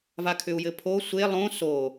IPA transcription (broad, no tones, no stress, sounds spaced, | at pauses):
v a kʰ ʏ u̯ j ɘ pʰ o sʷ e lˠ õ s o